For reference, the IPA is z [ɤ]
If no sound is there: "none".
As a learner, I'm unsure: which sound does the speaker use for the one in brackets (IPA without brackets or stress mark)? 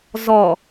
ɔ